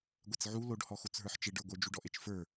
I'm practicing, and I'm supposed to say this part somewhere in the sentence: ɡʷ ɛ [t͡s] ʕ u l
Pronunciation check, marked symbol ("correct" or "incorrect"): correct